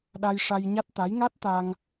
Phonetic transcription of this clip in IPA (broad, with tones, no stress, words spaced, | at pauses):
ɗa˧jʂa˧jɲa˦˥t̚t̪a˧˥j ŋa˦˥t̚t̪a˧ŋ